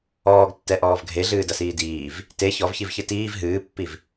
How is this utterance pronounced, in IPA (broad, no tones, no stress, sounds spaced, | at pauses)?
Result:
ɔː ɡ tː ɛ ʔ ɔː v ɡʱ e ɮ ɨː d ɐ s iː d iː v | t e ç ɔ v ç i v ç ɨ t iː v ɦ ɨː pː i v